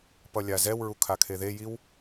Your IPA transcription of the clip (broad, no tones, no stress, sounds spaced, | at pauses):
p ʌ lʲ a z ɛ w ɹ u kʰ a kʰ e ð e j i w